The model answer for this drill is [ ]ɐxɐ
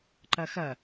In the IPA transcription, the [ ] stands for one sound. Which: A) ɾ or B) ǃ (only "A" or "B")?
B